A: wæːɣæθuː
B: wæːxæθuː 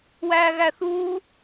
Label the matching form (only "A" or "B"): A